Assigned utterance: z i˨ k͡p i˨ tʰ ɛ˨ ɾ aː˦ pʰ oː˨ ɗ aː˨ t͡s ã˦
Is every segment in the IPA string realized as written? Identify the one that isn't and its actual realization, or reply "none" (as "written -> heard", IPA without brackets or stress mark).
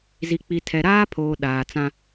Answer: none